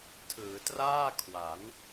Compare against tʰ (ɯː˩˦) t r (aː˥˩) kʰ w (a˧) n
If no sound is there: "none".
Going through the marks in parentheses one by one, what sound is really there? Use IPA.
ɯː˩˦, aː˥˩, a˩˦

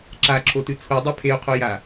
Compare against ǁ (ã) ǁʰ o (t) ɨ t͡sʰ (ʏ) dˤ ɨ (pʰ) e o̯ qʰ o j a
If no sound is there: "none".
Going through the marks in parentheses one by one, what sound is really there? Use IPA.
a, t, u, pʰ

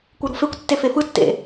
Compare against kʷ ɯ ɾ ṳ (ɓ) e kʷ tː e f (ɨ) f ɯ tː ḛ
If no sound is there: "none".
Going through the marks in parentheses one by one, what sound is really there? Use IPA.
f, e

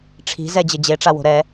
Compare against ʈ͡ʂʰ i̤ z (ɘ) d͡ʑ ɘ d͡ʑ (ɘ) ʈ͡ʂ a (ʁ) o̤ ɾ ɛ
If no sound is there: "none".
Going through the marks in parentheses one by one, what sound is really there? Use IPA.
ɛ, e, w

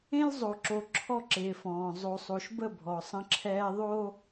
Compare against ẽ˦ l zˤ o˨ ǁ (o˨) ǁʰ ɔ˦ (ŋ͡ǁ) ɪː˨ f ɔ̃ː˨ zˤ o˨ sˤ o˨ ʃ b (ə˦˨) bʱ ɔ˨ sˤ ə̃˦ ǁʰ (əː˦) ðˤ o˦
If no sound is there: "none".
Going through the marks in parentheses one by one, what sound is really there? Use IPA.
o˨, ǁ, ə˦˨, ɛː˦

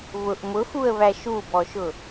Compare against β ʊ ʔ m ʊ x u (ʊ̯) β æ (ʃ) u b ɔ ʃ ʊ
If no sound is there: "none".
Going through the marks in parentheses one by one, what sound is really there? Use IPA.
ə̯, ʃ

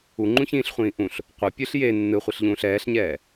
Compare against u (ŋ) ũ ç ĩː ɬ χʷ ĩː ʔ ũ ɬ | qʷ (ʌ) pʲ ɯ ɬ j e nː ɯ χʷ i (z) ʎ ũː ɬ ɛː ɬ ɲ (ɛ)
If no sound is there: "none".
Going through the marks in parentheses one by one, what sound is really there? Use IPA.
ŋ͡ǃ, ʌ, ɬ, ɛː

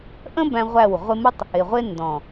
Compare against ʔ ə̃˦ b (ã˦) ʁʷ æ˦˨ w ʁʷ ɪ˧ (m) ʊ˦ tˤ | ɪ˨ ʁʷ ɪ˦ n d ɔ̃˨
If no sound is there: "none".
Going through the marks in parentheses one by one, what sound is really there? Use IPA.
æ̃˦, m

